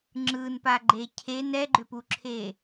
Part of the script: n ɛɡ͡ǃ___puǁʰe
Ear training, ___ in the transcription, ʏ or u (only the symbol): ʏ